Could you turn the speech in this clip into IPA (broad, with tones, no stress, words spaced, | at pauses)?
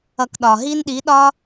ʌ˧kɗɒ˨ ɦi˦nɗi˨˦ɗɒ˦